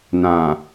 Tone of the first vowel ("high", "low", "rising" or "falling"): low